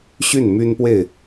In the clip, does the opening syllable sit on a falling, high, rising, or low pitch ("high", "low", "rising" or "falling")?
falling